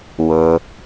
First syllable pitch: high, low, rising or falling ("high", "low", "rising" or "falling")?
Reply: low